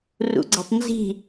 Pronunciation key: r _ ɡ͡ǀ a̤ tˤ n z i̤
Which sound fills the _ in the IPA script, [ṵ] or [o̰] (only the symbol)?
ṵ